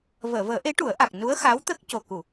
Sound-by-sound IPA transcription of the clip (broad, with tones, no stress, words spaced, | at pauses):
vəː˨˩˨vəː˨˩˦ʔe˧˥ ʈu˨˩˦ə̯ʔa˨˩k̚ nu˧˥ə̯xa˧˥wt̪ə˦˥k̚ co˨˩ku˨˩˨